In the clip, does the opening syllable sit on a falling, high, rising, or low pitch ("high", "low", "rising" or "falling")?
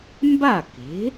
falling